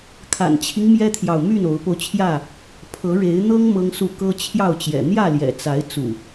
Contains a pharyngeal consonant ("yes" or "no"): no